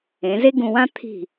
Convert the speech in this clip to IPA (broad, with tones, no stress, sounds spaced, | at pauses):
ẽ˩˧ z e˥ ɡ ũ˧ w ã˥ t̪ʰ i̤˧˩